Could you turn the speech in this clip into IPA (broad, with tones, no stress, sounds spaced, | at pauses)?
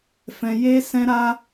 f ɛ̃˧ j e˦ s ɛ̃˦ ɾ a˦